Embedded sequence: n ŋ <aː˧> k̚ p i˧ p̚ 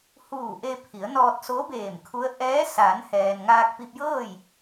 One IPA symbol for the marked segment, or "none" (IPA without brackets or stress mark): aː˧